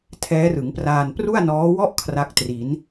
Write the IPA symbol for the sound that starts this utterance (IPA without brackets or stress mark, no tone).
tʰ